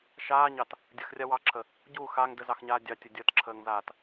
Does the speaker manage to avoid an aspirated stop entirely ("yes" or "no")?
no